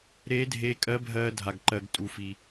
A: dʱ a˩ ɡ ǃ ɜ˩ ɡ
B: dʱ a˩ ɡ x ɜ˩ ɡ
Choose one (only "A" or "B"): A